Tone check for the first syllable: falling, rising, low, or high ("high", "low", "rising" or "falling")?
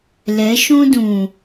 rising